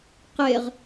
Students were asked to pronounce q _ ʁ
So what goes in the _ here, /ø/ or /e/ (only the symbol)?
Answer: e